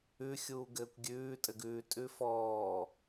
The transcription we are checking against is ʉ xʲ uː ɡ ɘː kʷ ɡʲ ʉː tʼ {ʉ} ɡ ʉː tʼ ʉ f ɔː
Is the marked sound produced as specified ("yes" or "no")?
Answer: no